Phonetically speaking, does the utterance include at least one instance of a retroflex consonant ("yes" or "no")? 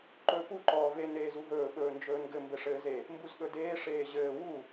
yes